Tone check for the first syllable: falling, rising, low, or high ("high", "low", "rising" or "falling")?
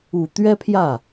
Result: low